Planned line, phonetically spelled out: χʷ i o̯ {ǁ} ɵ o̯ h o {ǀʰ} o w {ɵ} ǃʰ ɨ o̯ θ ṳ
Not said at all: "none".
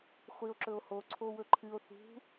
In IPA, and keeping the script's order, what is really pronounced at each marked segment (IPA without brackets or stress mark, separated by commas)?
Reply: ǁ, ǀʰ, ɵ